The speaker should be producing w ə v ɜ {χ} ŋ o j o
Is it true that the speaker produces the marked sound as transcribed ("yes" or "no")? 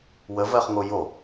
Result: yes